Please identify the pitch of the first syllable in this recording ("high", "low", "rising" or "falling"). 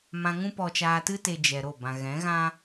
low